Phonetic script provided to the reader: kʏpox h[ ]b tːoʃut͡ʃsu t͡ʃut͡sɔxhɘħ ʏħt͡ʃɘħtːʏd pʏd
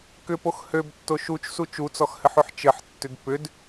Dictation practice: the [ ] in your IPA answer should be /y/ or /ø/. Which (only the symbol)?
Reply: ø